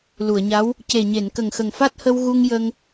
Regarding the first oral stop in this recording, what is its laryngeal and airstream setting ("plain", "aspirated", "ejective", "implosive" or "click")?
plain